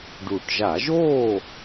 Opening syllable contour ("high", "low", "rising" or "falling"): low